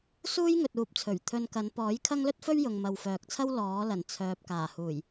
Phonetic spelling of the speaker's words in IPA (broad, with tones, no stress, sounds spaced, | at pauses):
s uː˥ j ŋ ɵ˨ t̚ uː˨ p̚ t͡sʰ ɵ˨˩ ɥ t̪ʰ ɵ˧ n k ɐ˨˧ n p ɔː˨˥ j kʰ ɐ˥ ŋ l ɵ˥ t̚ f ɵ˥ ɥ j ʊ˨ ŋ m ɐ˨ w f œː˨ k̚ t͡sʰ ɐ˥ w l ɔː˨˥ l ɐ˨˩ n t͡sʰ œː˨ p̚ k aː˨˩ h uː˨˩ j